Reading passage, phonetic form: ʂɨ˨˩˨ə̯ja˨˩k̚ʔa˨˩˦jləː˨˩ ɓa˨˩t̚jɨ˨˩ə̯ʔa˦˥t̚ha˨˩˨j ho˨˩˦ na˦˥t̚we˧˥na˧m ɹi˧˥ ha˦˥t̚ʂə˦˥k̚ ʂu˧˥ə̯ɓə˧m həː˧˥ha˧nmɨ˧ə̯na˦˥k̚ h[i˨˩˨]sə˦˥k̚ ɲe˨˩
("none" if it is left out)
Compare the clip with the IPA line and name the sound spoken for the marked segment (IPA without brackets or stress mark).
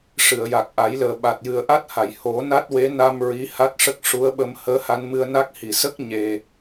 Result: i˨˩˨